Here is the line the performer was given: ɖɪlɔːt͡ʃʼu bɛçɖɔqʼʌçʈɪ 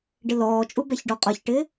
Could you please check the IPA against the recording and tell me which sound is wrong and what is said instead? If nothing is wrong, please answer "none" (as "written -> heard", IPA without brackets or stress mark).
none